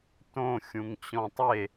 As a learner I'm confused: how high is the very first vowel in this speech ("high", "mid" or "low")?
mid